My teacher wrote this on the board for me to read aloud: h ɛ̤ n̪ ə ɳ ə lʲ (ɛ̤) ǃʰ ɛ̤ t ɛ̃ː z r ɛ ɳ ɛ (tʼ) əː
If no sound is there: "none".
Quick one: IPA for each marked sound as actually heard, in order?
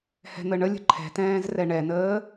ə̤, n

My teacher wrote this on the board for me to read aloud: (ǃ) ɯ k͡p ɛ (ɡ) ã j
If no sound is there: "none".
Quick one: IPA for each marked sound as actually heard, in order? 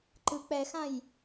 ǃ, x

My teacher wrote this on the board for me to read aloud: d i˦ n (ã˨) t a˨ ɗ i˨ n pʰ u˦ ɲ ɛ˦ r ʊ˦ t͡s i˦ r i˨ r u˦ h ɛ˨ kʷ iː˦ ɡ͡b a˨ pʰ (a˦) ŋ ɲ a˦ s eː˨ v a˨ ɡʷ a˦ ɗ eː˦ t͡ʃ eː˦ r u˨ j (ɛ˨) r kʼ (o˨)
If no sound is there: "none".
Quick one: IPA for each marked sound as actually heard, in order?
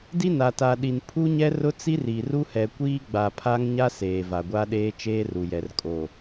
a˨, a˦, ɛ˨, o˨

